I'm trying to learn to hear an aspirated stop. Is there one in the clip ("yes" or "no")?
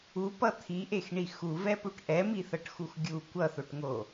yes